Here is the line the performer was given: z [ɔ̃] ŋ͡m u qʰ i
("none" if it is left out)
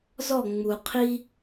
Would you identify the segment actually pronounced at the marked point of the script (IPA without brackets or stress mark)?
ɔ